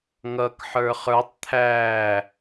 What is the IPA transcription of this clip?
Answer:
ŋ ʌ k ħ ə˞ χ ə˞ tˤ t̪ʰ æː

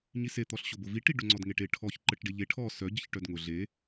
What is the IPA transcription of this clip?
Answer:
ɲ i s e t̪ ɔ ɬ ɕ ʊ b ʊ v i ʈ i ɖ ʊ ŋ͡ǀ ɔ d ŋ e ʈ e ʈʰ ɔ ç ǃ ə ʈ ɖ e ʎ e ʈʰ ɔ s œ ɟ ə ç ʈ œ d ŋ ʊ ɮ e

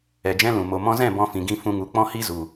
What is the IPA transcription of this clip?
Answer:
ɛ˨ d͡ʒ ɛ̃˦ l ũ˨ m o˨ m ɔ̃˧ z ɛ̃˦˨ b ɔ̃˧ f ĩ˨ ɡ ĩ˧ f ũ˧ ŋ u˨˦ k͡p ɔ̃˦ h i˦ z u˨

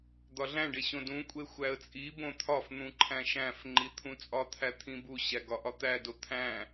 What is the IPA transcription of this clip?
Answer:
d̪ ɒ ɮ æ̃ ɖ e ɕ õ d ũ kʷʼ e xʷ æ ə̯ t͡sʼ i b õ t̪ʰ ɒ f n̪ ũ ǃʰ æ̃ ʃ æ̃ f ŋ͡ǃ i t̪ʰ ũ t͡sʼ ɒ t̪ʰ æ t̪ʰ ĩ b u ɕ æ ɡ ɒ ʔ ɒ t̪ æ d o t̪ʰ æ̃

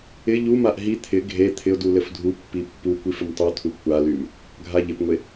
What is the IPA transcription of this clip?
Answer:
ɪ ʎ u m a ʔ ɦ i t̪ʰ ɪ ɡʱ e t̪ʰ ɪ ʊ̯ d u l ɘ f dʱ u pː i pː u kʷ i f ɘ m tˤ u t̪ʰ u kʷ a l y m | ɡʱ a ʎ ɪ p ŋʷ e

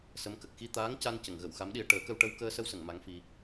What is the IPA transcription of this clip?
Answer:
s ə˧˥ m k ə˨˩ k̚ x i˧ t̪ aː˧˥ ŋ c a˧ n c ə˨˩˨ ŋ ɣ ə˨˩˨ w x a˧˥ m ɗ i˧ ə̯ ʈ əː˨˩˦ k ə˧ w ʈ ə˧ w k əː˧ s ə˧ w s ə˨˩˨ ŋ m a˧˥ ŋ f i˧

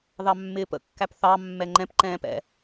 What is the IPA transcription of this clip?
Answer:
ð ɑ mː ɪː p ə̰ kː æ p θ ɑ mː ɛ ŋ͡ǃ ɛ̃ p ǃ ɛ̃ː p ɛ̰

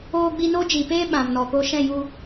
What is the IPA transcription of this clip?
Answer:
oː˧ ɡ͡b i˧ n o˦ d͡ʒ i˨ p eː˦ ɓ ã˨ m n ɔ˨ k o˧ ʃ ɛ̃˦˨ j u˧

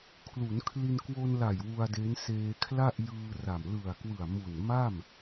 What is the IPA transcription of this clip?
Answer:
kʰ l u˩˦ n kʰ l i˧ n k w o˧ n l a˨˩ j w u˧ a̯ d e˦˥ n s eː˧ kʰ l a˥˩ ʔ j ɯː˧ r a˨˩ m l ɯ˨˩ a̯ k w ɯ˨˩ a̯ m u˨˩ n m a˥˩ m

